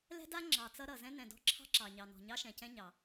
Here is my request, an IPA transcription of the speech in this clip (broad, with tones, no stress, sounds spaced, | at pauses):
l ɛ̤˥ d a˥ ŋ͡ǁ ɑ˩ t͡s ʌ˧ ɾ ʌ˩ z ɛ̃˧ n ɛ̃˩ d ɔ̤˧ ǁʰ ɑ̤˧ ǁ ɑ˩ ɲ ɑ˩ n ɔ̤˩ ɲ ɑ˧ ʃ ɛ̃˩ c ɛ̃˧ ɲ ɑ˩